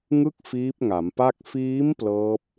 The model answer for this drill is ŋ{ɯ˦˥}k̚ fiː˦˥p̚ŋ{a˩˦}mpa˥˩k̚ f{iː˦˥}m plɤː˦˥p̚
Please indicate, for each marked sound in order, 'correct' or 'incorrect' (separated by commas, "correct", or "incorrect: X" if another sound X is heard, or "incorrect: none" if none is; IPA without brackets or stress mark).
correct, correct, correct